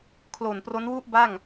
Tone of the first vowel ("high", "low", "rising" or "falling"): low